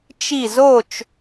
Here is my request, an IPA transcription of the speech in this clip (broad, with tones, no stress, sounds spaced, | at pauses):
t͡ʃ i˥˧ z o˥˧ t͡ʃ